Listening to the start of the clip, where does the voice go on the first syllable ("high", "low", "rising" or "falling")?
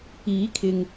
rising